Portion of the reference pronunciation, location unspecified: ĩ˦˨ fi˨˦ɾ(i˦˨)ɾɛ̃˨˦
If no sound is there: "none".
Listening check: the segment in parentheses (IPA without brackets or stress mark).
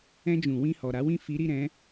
i˦˨